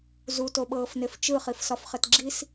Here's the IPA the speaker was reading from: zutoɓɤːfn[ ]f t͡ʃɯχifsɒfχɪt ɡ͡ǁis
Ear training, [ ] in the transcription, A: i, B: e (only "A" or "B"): B